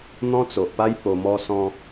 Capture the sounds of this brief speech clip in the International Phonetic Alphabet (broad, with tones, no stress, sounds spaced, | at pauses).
n̪ ɔ̃˦ t͡s o˨ ʔ p a˦ j p o˧ m ɔ˦ s ɔ̃˦